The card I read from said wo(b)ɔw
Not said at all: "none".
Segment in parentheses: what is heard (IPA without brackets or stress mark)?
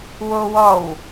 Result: w